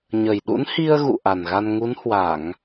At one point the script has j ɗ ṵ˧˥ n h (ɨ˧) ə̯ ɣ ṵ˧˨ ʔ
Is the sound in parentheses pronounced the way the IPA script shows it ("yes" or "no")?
no